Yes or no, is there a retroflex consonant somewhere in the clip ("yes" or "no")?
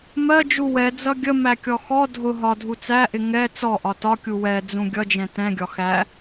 no